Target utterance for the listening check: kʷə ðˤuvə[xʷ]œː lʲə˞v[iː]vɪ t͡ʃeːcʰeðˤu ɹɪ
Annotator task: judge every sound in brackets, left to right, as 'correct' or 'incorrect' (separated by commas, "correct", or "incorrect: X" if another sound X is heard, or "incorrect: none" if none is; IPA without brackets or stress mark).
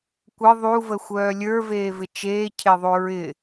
correct, incorrect: eː